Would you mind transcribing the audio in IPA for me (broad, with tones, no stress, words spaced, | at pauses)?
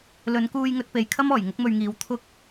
lɵ˨˧nkuː˧j ŋɵ˧t̚pe˨jkʰɐ˥m ɔː˨˩jŋʊ˥k̚mɵ˧ɥŋiː˨˧w t̪ʰʊ˧k̚